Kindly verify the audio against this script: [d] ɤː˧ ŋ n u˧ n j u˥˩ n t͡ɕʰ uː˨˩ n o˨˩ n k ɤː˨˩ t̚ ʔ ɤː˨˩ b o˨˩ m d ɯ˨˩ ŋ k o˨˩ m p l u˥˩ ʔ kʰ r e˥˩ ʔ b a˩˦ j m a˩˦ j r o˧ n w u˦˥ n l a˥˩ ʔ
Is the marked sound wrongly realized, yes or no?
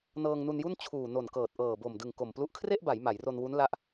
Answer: yes